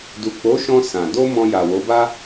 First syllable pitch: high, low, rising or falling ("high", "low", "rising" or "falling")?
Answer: low